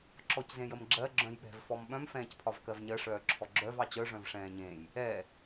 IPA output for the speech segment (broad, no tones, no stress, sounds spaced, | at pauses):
ǁ ɔ c z ẽ j ə m ɡ͡ǁ ɜ ɡ͡ǁ œ̃ j ɓ ɛ̤ v f ɔ m ɓ œ̃ m f ɛ̃ː c pʰ ɒ v k ɜ v ɲ ɜ ʂ œː ǁʰ ɔ ɡ͡ǁ œ v ɑ t͡ɕ œ ʐ œ̃ v ʂ ɛ̃ː ɲ ẽ j | ɛ